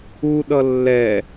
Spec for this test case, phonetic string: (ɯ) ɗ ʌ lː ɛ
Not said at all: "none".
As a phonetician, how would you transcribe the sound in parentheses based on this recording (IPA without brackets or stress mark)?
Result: u